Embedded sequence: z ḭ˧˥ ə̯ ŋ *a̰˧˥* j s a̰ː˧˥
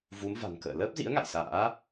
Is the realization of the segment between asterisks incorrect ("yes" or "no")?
yes